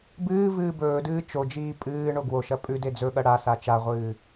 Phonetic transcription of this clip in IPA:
b ɨː v ɨː b ɵː d ɨː t͡ʃ o d͡ʒ iː pʼ ɨː ɳ o ɡ w o ʃ ɐ pʼ ʉ d e d͡z ɵ ɠ ɐ ɽ a s a t͡ʃ a ʁʷ ɨː

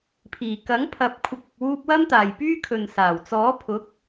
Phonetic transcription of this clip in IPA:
pʰ iː˨˩ k ɐ˨˥ ŋ pʰ ɐ˨˥ p̚ kʷʰ ɪ˨ k̚ ɪ˨ k̚ w uː˧ p̚ w ɐ˥ m t̪ aː˨ j p yː˥ kʰ ɵ˨ n s aː˨˩ w t͡s ɔː˨˥ pʰ ʊ˨˥ k̚

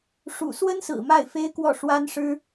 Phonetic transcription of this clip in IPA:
ʂ ṵ˨˩ s w ə˥ n s ɹ̩˨˩ m a˥˩ ɪ̯ f e˥ ɪ̯ k w ɔ˥˩ ʂ w a˥ n ʂ ɻ̩˥

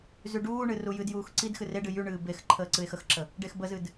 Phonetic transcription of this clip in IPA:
z y ɖ uː ɳ ɨ r u j ɨ d j uː x ǀ i d x ɨ r e ɖ ɨ j y ɳ ɨː b e x ǃʰ əː ǀ ɨ e̯ x ə x ǁ ə | ɖ e x b ə z ɨ d

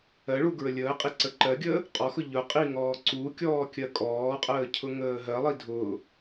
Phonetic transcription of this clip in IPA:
ɜ ɭ u ɡ ɹ ə lʲ əː qʼ i ǀ ə ǃ ɜ ɡʲ əː | qʼ ɔ x ʊ ʎ ʊ qʼ i ŋ ɔː ǀ u kʲ ɔː kʲ ɜ kʼ ɔː qʼ əː cʰ ʊ ŋ əː ɦ ɜ lˠ i dʱ ʊː

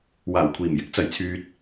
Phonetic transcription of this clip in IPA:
w aː˨˩ w kʷʰ iː˨˩ m j ɪ˨˥ k̚ t͡s ɐ˨˩ j t͡sʰ yː˨ t̚

